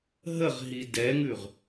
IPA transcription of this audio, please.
ɦəʁɦi dɛŋʉʁ

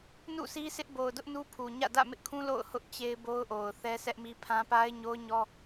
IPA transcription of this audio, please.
nṵ˦˨si˦sɪ˦ʔ bo˨ʊ̯dʊ˦ʔ nu˦pʰu˨ɲä̰˦˨ dä̰˦˨mɪ˦ʔkʰũ˦ lo̰˦˨ʊ̯hʊ˦ʔ t͡ɕe˦ɪ̯bo˦ʊ̯ʔo˨ʊ̯θɛ˦ sʰɛ˦ʔmi˦pʰã˦ pa˦ɪ̯ɲo˦ʊ̯ɲɔ˦

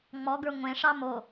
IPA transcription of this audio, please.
ŋ͡mɔɡə˞ ŋʷẽʂɑ mo

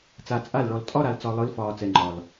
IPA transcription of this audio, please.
t͡sa˨ t͡sʼa˦˨lɭɔ˨l tʼɒ˦ɾa˨l t͡sɒ˨lˠɯ˨˦lfɒː˨ t͡sɛ˨ŋ͡ǃɒ˨l

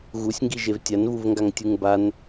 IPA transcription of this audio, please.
ɣusʲŋɡiʒev tʲanvuvŋɡaŋtʲuŋ ban

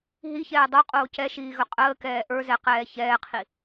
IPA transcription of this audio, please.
ɦiçɛː dˤoqʼoː cɛʃiːɣɵ qʼəːkɛː ʔə˞zɛqɛː çɛːqʰi

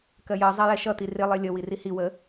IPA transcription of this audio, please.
kɜjɜ zˤɛjɛʃʌt̪i rɪlˠi lʲə wirihi wə

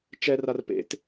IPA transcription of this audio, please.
t͡ʃɛrar pḛt

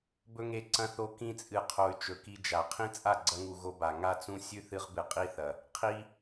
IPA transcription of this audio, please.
bɵ˧ŋe˨ ǀɐ̃˧θo˧ kĩ˧t͡sʼɨ˨qʰo˨y̯ t͡ʃɵ˨ki˧d͡ʒa˨ qʰĩ˦ t͡sʼa˦˨ɡ͡ǀɐ˧ŋu˨ ɣo˧ba˨ ŋa˦t͡sũ˦ sʲʉ˦θɨ˧ʁbɨ˨ qʼi˦θɐ˨ | qʰi˧

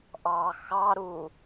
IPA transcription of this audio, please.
ʔɑ xɑɾu

